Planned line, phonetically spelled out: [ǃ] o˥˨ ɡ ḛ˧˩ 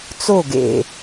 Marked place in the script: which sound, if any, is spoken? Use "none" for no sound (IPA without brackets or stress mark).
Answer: t͡s